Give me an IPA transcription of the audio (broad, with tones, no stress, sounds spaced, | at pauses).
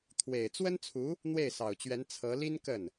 t̪ʰ w e˨˩ ɪ̯ t͡s w ə˥ n t͡sʰ u˧˥ | n̪ w e˥˩ ɪ̯ s ɑ˨˩ ʊ̯ t͡ɕ ɥ ɛ˧˥ n t͡sʰ ɤ˧˥ l i˥ n k ə˥˩ n